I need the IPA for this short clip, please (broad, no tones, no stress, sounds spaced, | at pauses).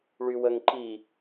ɭ y w ə ŋ ǃ i